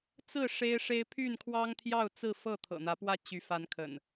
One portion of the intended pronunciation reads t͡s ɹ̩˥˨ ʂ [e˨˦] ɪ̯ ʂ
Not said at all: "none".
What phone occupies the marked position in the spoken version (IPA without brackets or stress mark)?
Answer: e˦